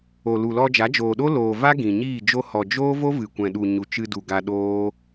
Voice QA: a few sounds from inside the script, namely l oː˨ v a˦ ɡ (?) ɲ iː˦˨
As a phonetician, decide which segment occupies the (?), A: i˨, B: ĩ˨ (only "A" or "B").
B